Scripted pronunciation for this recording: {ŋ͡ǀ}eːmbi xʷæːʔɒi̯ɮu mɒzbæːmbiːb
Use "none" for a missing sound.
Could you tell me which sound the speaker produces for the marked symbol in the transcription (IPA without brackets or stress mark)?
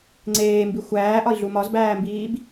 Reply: ŋ͡ǀ